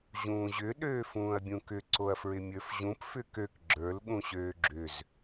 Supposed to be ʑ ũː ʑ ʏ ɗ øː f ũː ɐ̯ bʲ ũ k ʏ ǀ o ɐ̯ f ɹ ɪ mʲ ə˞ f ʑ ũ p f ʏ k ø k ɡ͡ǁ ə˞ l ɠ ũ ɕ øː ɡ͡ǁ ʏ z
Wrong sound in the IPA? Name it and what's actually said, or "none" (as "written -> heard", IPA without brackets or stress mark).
none